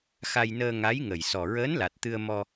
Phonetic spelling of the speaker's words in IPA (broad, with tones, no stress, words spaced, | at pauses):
xa˧jnəː˧ ŋa˧˥jŋə˨˩j sɔ˨˩ɹəː˧˥nla˨˩t̚ t̪ɨ˧ə̯ mɔ˧